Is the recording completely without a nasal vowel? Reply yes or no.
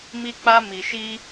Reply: yes